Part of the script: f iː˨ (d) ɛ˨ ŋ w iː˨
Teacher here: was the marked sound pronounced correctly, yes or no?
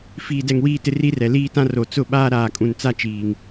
yes